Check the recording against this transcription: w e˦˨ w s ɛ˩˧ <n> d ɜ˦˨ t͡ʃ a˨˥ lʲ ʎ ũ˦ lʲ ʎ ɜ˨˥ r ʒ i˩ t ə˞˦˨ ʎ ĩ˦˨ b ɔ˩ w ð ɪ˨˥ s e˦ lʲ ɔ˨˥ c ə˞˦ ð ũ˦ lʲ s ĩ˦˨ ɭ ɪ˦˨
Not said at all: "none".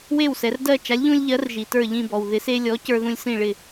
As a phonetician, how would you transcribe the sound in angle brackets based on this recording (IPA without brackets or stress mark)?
r